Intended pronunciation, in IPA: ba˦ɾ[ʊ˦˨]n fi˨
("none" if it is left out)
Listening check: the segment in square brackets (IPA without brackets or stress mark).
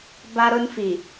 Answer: ʊ˦